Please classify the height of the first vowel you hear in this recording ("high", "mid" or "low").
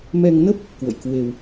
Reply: mid